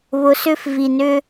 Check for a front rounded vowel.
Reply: present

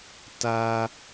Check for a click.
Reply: absent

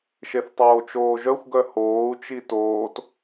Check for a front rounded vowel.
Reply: present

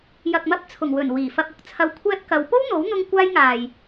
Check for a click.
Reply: absent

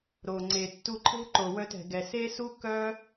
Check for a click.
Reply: present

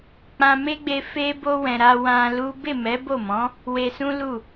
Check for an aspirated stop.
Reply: absent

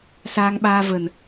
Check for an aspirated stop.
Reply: absent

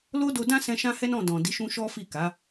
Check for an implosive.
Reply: absent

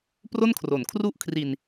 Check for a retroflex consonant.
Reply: absent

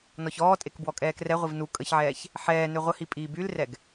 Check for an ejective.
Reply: present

